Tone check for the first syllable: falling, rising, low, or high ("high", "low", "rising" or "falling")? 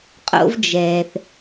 high